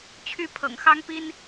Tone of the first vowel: high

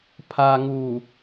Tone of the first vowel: low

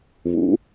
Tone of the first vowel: rising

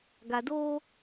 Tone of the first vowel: low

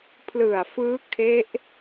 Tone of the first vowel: low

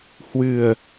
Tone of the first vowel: low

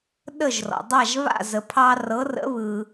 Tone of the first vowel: falling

